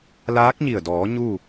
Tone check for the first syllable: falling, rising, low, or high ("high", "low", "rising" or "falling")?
rising